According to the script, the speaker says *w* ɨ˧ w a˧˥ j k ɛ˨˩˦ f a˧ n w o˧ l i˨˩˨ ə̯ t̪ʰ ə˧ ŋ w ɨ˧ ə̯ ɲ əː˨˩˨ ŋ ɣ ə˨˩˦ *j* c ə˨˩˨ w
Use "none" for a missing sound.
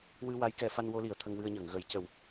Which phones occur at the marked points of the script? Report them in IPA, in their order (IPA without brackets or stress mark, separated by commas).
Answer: w, j